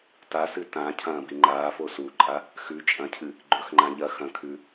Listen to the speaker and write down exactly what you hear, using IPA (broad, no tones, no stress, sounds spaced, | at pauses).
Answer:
t a s ɨ t ã cʰ ɐ̃ː b i ŋ͡ǃ aː f o s u ǃʼ a | x ʉ t͡ʃʼ ɐ̃ cʰ ɨ | ɡ͡ǃ ɵ x ŋ͡ǃ ã ʎ ɐ x ɐ̃ kʰ ʉ